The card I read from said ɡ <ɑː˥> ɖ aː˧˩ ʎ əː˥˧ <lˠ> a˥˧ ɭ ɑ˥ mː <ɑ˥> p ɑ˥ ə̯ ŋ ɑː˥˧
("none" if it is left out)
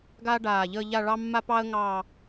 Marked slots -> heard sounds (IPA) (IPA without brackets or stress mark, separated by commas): aː˥, ʎ, a˥